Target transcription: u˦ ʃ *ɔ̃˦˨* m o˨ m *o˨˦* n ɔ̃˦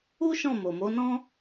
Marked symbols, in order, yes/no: yes, yes

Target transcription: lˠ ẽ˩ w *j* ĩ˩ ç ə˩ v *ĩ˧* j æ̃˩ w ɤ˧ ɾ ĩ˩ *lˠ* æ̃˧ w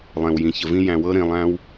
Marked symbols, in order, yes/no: yes, yes, yes

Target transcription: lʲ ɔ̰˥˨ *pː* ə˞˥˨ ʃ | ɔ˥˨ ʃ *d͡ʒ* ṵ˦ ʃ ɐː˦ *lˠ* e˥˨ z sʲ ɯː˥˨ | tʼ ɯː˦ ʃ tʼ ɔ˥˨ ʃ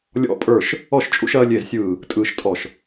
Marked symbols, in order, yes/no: no, no, no

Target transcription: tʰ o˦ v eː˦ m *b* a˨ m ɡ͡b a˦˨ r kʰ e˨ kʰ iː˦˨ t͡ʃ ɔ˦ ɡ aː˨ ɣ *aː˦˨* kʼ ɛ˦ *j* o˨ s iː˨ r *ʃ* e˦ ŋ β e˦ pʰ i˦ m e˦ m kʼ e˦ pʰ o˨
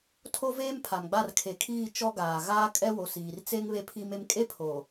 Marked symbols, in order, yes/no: no, no, no, no

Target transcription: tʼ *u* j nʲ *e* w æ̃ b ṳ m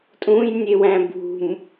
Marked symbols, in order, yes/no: no, yes

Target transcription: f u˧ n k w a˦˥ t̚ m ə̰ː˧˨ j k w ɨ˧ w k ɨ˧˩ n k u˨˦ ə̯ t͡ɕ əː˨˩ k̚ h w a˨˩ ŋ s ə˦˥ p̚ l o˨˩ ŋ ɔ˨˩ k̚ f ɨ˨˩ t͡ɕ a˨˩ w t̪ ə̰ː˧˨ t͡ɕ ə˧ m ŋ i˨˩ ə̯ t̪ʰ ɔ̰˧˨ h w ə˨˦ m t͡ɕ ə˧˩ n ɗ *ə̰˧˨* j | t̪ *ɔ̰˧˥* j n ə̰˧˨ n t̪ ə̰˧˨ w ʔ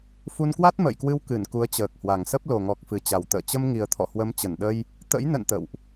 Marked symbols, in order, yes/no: no, no

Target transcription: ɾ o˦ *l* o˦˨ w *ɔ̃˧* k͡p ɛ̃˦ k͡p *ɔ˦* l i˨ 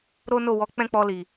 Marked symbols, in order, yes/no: no, no, no

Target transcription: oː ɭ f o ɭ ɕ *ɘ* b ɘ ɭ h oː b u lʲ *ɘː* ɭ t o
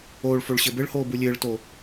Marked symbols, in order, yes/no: yes, yes

